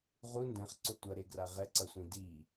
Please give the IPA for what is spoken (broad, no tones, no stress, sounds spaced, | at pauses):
ʁ u n d ɛ̃ χ ǀ o tʷ ʌ ɾ e ɡ r a ʁ ɛ ǀ ʌ sʷ ĩ d i